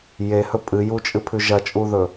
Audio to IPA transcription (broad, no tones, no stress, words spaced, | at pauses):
jehɵ pʼɨjut͡ʃʼɨpʰʉ ʒɐt͡ʃʼuðɵ